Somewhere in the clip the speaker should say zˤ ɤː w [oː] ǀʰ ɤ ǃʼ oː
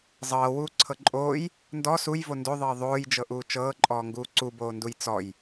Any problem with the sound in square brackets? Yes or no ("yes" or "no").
yes